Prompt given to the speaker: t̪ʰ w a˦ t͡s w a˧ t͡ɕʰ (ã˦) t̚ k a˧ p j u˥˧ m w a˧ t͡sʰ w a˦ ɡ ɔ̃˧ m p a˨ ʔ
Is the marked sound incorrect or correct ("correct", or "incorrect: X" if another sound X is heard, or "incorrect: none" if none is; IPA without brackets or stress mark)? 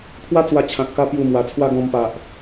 incorrect: ã˨